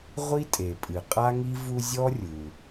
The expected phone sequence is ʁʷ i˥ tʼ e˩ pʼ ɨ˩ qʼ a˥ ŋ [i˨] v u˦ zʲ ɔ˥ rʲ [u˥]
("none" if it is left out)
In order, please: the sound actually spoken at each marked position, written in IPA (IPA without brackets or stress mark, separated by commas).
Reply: i˥, u˩